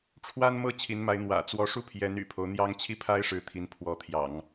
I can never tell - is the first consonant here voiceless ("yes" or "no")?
yes